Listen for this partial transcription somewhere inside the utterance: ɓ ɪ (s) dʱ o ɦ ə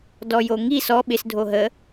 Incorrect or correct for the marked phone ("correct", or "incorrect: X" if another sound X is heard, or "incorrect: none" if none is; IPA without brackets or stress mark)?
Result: correct